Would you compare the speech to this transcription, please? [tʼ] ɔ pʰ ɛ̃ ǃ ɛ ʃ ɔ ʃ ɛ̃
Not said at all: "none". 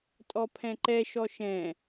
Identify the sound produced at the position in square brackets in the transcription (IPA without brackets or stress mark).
tʼ